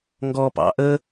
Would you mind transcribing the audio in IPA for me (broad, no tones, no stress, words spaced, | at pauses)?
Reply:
ŋɡɔ pɑ̰ ʔə